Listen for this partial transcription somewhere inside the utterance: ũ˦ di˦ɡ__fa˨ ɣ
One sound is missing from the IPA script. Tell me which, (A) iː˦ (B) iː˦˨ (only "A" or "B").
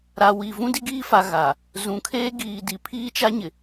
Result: A